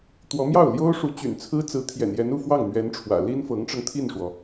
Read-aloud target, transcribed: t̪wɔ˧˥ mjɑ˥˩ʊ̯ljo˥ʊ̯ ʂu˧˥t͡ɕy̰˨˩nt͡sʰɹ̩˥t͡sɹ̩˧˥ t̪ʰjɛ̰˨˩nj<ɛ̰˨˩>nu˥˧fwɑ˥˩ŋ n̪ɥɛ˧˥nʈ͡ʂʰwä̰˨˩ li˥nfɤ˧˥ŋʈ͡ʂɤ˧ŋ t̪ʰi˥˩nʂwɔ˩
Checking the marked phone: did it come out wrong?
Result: yes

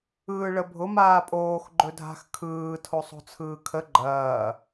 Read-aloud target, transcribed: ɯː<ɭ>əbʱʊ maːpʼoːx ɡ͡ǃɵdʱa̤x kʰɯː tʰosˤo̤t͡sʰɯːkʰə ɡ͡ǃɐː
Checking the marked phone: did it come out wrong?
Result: no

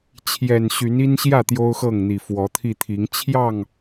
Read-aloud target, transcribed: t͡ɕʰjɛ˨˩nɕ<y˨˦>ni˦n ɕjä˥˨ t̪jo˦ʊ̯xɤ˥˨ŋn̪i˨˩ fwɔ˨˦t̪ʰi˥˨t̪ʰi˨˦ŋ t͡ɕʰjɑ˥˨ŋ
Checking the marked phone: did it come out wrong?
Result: no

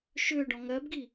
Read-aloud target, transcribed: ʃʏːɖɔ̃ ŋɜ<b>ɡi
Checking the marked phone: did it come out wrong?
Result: no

